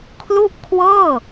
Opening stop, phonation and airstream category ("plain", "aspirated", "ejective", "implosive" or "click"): aspirated